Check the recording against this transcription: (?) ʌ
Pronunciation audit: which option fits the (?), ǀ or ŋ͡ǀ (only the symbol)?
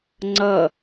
ŋ͡ǀ